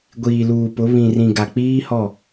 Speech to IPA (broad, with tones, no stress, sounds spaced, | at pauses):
ɡʷ iː˨ l uː˨ p ʊ˨˦ β ĩ˨ r ĩ˨ ɡ a˨ k͡p iː˦ h ɔ˦˨